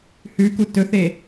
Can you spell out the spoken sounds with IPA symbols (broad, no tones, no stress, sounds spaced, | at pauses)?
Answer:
h ʉ k u t ɵ θ e